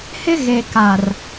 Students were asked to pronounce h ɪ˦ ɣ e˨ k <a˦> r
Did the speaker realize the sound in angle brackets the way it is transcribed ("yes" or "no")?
no